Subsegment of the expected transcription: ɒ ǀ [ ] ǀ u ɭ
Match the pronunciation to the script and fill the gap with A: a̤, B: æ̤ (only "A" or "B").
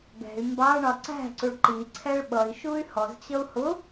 B